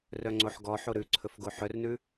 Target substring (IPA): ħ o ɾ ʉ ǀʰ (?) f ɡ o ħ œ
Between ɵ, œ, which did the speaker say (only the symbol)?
ɵ